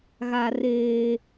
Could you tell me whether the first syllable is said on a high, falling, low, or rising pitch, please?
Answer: high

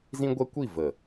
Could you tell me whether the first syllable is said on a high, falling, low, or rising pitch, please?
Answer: high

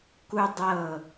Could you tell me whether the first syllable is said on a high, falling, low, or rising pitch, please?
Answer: high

